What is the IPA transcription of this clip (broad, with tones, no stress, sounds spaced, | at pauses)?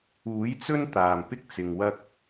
uː˨˥ j t͡s ɵ˥ n t̪ aː˨˩ m p ɪ˥ k̚ t͡s ɪ˨ ŋ w ɐ˥ k̚